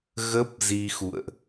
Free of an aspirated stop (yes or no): yes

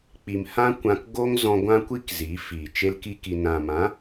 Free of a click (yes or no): yes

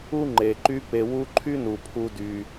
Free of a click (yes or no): no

